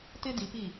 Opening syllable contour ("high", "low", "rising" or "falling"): high